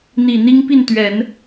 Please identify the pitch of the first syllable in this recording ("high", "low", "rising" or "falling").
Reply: low